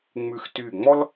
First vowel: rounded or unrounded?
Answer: rounded